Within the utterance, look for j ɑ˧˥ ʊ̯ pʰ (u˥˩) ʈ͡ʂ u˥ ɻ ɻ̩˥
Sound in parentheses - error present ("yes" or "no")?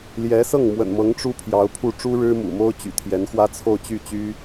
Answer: no